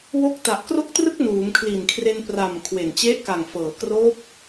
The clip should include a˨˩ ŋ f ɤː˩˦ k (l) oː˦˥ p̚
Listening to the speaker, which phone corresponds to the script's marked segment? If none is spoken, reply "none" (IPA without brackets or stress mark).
r